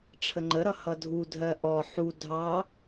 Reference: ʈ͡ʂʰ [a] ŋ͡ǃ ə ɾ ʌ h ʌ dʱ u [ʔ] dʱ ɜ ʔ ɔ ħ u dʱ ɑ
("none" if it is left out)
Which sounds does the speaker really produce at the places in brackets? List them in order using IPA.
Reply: ə, none

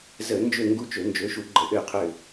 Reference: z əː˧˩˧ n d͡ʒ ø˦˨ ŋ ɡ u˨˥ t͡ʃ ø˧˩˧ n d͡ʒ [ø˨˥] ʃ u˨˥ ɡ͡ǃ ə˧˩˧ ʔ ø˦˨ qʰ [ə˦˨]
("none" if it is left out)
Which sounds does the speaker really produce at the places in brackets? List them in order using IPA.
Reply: ø˨˥, ø˦˨

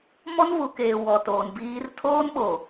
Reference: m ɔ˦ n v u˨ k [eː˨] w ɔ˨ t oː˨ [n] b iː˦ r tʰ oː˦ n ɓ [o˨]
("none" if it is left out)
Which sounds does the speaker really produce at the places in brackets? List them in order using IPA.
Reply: eː˨, n, o˨

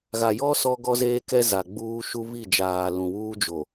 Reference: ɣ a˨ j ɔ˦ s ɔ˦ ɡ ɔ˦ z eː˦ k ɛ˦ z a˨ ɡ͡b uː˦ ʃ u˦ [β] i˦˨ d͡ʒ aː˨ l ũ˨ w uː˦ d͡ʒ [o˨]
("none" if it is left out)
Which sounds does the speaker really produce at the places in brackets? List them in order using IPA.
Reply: β, o˨

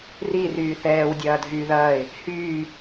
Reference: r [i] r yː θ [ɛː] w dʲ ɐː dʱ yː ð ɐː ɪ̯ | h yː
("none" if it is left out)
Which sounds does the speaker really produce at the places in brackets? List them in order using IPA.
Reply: i, ɛː

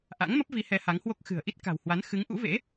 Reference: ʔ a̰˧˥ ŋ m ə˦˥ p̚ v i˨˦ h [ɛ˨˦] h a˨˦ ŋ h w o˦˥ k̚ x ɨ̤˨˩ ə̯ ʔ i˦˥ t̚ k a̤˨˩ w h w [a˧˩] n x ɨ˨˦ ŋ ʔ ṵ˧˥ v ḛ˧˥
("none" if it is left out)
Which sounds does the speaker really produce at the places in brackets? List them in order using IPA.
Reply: ɛ˨˦, a˨˦

